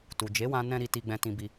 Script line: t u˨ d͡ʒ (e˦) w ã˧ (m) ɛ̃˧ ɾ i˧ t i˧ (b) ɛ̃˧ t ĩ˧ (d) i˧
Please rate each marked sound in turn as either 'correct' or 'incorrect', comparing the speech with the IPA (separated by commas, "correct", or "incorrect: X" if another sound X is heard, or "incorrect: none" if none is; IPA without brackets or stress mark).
incorrect: e˨˦, incorrect: n, incorrect: ɡ͡b, incorrect: b